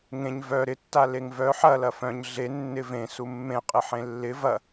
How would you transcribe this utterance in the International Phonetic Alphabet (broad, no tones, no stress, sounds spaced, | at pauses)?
ŋ ẽ ɲ v œ ɾ ɪ tː a l e ŋ v œ ħ ɐ l ɐ f œ̃ ɲ ɮ e nː ɪ v ẽ s u mː ẽ qʼ ɪ ħ ẽ lː ɪ v ɐ